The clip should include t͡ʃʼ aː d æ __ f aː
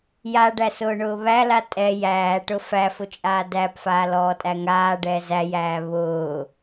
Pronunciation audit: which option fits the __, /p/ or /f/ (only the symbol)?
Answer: p